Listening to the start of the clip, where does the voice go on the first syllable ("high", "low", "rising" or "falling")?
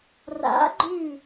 rising